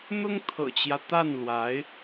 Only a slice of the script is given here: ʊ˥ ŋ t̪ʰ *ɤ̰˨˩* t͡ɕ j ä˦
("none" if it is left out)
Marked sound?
ɤ̰˨˩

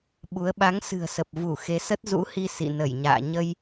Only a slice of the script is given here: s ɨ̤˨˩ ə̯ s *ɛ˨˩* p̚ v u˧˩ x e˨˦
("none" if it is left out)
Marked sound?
ə˨˩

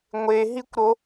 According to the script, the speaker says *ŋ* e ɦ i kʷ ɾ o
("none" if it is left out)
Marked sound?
ŋʷ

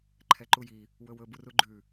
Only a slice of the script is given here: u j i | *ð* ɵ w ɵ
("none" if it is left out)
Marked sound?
w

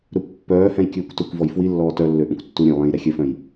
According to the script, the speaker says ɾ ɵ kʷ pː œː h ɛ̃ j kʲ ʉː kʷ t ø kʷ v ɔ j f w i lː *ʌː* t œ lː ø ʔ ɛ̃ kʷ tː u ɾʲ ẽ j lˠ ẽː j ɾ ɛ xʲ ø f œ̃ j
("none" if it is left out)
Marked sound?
ɔː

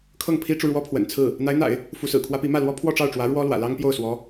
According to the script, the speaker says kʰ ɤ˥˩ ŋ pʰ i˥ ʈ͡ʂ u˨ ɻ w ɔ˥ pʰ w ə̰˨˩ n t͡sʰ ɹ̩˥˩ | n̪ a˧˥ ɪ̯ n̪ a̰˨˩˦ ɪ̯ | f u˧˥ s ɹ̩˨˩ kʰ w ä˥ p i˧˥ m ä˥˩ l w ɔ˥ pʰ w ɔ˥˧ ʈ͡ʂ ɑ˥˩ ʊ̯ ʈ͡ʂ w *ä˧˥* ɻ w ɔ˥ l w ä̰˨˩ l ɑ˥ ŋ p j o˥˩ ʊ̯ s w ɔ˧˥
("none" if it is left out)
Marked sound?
ä˧˥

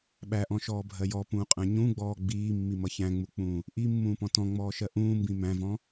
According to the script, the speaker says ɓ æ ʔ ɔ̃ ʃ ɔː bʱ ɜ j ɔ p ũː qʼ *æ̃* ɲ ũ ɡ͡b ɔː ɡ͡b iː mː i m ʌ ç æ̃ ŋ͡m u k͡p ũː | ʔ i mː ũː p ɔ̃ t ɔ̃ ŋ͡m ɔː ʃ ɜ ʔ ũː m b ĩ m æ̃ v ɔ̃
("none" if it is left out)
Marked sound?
æ̃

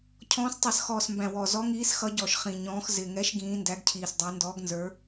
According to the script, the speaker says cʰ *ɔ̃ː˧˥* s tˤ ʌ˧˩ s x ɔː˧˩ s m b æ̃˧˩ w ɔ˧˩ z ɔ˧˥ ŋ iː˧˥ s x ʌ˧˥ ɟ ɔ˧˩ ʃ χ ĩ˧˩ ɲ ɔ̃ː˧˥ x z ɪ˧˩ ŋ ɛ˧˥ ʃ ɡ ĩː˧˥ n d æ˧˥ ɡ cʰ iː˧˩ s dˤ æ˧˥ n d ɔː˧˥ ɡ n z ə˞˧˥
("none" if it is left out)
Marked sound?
ɔ̃ː˧˥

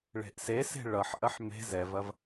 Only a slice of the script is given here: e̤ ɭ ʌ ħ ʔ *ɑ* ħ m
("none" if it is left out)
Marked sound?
ɐ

